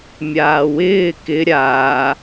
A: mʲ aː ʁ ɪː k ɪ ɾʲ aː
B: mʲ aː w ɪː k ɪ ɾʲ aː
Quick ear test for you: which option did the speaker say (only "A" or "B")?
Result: B